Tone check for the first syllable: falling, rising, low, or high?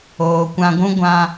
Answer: low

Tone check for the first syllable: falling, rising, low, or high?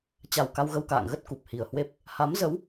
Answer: low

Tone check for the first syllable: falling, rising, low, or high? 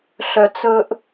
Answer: low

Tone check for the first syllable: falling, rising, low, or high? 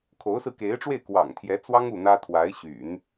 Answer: rising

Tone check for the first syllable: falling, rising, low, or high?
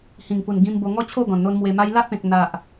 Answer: low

